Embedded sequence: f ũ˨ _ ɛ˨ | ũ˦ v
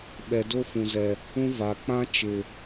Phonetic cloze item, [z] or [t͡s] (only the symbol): z